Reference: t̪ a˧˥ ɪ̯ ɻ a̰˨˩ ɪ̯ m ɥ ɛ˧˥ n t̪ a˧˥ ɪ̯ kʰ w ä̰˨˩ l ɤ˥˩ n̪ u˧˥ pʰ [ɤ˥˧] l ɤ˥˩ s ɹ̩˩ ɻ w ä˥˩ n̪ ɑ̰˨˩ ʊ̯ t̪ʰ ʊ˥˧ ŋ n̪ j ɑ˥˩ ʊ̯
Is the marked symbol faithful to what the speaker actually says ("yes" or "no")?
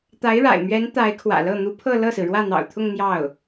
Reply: yes